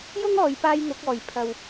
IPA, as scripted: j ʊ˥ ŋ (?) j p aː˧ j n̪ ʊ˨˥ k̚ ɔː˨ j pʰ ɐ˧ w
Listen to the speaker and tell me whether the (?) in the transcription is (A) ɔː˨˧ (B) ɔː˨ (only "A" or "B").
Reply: A